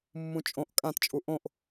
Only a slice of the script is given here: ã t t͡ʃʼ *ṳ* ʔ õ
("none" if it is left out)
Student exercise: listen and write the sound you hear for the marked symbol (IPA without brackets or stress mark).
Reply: u